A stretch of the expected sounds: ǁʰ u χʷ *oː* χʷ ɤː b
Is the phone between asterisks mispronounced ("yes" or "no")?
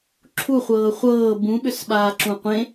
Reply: yes